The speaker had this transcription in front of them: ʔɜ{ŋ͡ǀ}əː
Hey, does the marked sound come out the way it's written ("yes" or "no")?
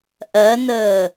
no